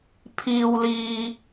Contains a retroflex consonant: no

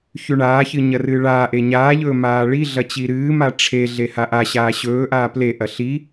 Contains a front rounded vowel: no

